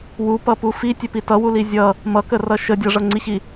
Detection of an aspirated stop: absent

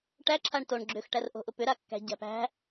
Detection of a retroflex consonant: present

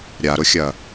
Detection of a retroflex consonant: absent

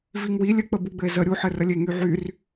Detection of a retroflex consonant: absent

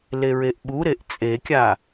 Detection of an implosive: present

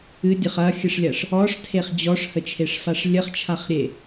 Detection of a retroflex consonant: present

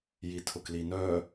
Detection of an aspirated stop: present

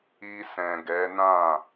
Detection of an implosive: absent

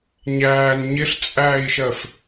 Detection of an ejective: present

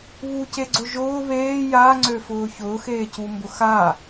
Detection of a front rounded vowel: present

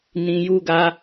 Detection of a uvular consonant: absent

